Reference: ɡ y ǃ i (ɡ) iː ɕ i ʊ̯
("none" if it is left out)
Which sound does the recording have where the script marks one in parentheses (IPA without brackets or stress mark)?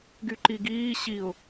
ɡ